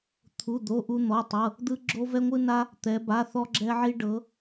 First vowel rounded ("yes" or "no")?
yes